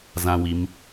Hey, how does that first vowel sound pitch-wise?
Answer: high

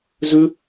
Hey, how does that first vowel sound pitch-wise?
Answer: high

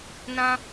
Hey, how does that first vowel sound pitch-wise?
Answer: high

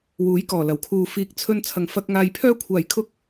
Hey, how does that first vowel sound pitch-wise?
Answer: rising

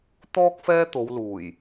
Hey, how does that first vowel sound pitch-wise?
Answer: high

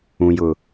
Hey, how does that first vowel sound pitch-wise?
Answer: low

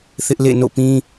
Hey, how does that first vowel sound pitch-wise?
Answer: high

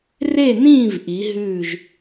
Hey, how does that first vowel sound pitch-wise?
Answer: falling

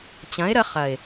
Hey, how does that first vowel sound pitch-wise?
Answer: rising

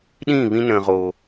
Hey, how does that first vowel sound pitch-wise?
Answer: falling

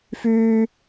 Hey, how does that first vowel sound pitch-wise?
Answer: high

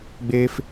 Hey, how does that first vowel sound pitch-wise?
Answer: high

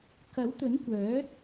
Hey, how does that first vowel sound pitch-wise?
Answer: rising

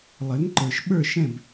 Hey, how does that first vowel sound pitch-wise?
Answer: rising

